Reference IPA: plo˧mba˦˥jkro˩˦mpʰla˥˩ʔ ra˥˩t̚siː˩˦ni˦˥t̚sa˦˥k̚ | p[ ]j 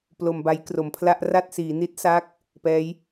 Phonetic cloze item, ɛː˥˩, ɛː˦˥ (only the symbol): ɛː˦˥